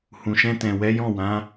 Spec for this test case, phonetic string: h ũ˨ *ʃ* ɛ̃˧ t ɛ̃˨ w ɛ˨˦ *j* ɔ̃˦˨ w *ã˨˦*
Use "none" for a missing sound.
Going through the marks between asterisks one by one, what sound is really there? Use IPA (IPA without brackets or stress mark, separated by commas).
ʃ, j, ã˨˦